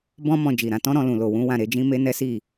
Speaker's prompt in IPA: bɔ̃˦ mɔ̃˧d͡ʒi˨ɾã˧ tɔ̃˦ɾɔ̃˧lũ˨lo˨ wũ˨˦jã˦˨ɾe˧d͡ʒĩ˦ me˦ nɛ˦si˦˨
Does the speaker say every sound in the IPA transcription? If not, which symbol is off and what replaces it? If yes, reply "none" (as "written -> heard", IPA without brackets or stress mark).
j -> w